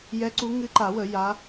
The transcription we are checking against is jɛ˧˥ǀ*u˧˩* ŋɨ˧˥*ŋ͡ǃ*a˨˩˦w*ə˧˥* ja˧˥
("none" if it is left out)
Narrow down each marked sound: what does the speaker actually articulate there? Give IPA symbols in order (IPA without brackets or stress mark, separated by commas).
u˧˥, ǃ, ə˨˩˦